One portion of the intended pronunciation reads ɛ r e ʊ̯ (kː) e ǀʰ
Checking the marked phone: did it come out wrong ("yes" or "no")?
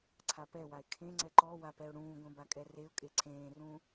yes